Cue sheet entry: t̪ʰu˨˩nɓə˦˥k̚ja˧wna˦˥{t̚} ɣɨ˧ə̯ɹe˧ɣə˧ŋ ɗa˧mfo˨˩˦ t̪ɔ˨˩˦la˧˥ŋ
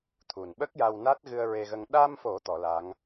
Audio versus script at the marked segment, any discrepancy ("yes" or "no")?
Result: no